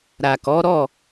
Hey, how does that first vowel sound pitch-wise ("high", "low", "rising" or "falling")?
low